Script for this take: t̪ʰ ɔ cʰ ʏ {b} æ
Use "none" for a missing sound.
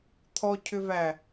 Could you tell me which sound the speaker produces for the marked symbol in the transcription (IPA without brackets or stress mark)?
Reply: v